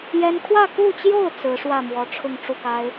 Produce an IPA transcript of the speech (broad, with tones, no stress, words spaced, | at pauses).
jɛ˥n kʰwä˥˧ku˥˧t͡ɕjo˥˩ʊ̯ t͡sɹ̩˧˥ʂwä˥˩mwɔ˧˥ ʈ͡ʂʰʊ˥˧ŋʈ͡ʂu˥˩ka˥ɪ̯